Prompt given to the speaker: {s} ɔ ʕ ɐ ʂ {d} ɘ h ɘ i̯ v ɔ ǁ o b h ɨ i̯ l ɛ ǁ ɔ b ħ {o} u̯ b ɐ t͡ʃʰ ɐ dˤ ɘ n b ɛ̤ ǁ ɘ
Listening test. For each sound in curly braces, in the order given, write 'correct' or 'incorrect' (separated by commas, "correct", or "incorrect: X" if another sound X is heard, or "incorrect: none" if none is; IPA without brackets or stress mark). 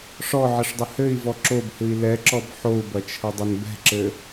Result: incorrect: ʂ, incorrect: dˤ, correct